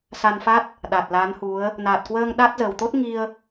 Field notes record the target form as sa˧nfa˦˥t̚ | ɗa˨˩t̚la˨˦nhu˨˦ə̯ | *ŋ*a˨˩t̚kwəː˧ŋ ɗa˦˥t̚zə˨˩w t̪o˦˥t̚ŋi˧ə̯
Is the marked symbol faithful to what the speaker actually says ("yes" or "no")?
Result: no